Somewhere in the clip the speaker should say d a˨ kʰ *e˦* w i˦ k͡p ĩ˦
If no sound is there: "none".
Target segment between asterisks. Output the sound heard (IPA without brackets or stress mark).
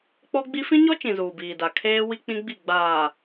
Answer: eː˦